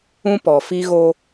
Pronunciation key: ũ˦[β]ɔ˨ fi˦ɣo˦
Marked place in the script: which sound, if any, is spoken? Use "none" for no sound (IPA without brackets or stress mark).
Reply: p